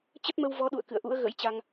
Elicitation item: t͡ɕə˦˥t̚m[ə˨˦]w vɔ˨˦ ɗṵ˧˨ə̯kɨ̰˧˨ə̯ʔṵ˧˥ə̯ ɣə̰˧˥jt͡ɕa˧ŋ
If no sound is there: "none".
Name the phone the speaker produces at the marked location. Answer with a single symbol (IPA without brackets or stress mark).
ə˧